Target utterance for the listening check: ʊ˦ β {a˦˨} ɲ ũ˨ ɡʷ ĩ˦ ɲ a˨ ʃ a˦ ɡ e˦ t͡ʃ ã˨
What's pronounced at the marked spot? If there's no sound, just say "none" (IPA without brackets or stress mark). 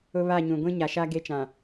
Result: a˦˨